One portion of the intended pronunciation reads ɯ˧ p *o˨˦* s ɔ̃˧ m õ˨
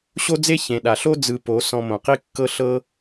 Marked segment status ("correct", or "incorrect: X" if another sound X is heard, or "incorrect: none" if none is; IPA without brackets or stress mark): correct